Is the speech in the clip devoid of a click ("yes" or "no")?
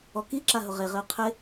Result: no